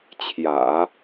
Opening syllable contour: low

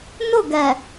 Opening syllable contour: falling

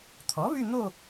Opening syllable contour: rising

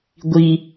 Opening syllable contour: high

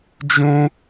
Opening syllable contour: high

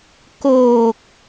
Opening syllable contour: low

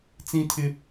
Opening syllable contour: high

